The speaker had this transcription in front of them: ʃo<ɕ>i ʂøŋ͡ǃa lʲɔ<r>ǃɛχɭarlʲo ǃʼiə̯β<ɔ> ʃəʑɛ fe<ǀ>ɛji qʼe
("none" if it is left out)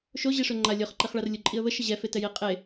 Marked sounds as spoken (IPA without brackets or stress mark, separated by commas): ʑ, χ, ə, t